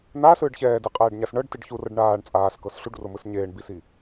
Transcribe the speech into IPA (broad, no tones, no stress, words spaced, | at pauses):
n̪asɯːɖ çɛːdiqʼɛːɖɲas ɳɤɖtiɖ çurɤɖ ɳaːɳ t͡sʼaːskɤs ɬuɖromɯs ɲeːɳbisi